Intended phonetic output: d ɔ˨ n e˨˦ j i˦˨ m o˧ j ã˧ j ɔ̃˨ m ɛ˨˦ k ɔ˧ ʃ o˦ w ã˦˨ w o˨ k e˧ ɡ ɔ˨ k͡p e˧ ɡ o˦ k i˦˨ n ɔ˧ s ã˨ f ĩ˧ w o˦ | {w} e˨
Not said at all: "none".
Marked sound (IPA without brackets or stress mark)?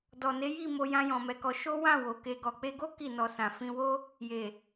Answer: j